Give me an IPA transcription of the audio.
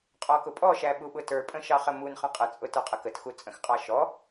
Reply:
qʼ ɔ k ʊ pʼ ɔ ʃ æ ɓ u ɓ ʊ t ə˞ pʼ ə̃ ʃ ɑ χ ə m u n χ ə̃ qʼ ə t͡sʼ ʊ t ə˞ qʼ ə k ə t x u t͡sʼ ə̃ x qʼ ɑ ʃ ɔ

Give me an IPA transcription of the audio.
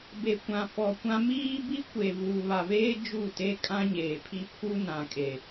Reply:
b e˨ kʷ ã˨ f ɔ˨ kʷ ã˦ m iː˦ b i˦ kʷ e˨ v uː˨ β a˨ v eː˦ d͡ʒ u˦˨ t e˦ kʼ ã˦ ɲ eː˨ pʰ i˦ pʰ u˦ n ã˨ kʼ e˨

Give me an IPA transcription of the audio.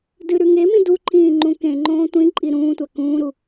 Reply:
d ɨ ɾ ʉ ŋ e m ĩ d u ǃʰ ĩː ŋ͡ǃ ũ k ẽ ŋ͡ǃ õː tʷ ĩ ǃʼ i ɾ ũː tʷ a k ũː ɾ u

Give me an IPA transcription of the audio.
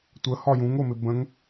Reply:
tʷ ə h ɒ j ũ ŋ o m ɪ b ə̃ ŋ

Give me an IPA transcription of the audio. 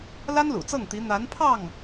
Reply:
l a˥ n l ṵ˨˩ t͡s ɤ˥˩ ŋ t̪ i˧˥ n̪ a˧˥ n pʰ ɑ˥˩ ŋ

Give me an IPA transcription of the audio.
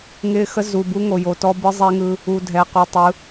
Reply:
ŋ ɪ˨ x ə˦ z u˨ b u˦ ŋ o˨ j o˨ t ɔ˦ b ɯ˦ zˤ ɛ˦ ŋ ɯ˦ | u˨ dʱ ɛ˨ q u˨ tˤ ɯ˨˦

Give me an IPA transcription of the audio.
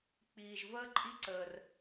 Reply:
k͡p iː˧ ʒ v əː˥ ǃʼ i˥ ǀ əː˧ r

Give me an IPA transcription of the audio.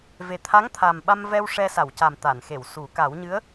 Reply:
v e˨˩ t̪ʰ a˧˥ ŋ t̪ʰ a˨˩ m ɓ a˧ m v ɛ˧ w ʂ ɛ˧ s a˨˩˨ w c a˨˩ m t̪ a˨˩˨ n x e˨˩˨ w s u˨˩˦ k a˨˩˦ w ɲ ɨ˧˥ ə̯

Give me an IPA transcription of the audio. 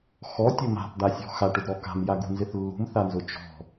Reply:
x ɔ tʲ ʊ m a̤ p d̪ a sʲ ɔ̤ x a ʈ ʊ d ɾ ɔ k a̤ m j a ɡ ṳ n z ɪ θ lː ṳ m θ a n z ʊ t͡ʃ ɔ̤

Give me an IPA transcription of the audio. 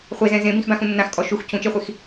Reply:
χʷ e z ɛ̃ z ẽ b ĩ x b ã x ũ nː ã x kʼ ɔ ʃ u x cʰ ũ t͡ʃ e χʷ i x

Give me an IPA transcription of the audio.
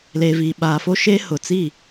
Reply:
l eː˨ v iː˨ ɓ aː˨ f o˦ ʃ eː˦ h ʊ˨ t͡s i˦˨

